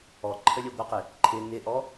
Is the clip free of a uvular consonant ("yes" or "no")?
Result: no